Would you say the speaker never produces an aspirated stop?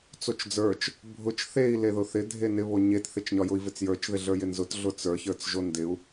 yes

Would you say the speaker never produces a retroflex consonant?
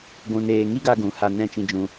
yes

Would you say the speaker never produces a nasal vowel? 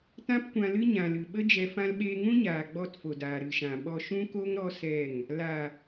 no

